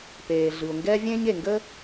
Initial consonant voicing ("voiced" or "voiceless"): voiceless